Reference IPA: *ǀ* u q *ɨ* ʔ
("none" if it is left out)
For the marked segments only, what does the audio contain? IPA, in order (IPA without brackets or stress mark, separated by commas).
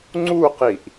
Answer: ŋ͡ǀ, i